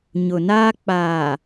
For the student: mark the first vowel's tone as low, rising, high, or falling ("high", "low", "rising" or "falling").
low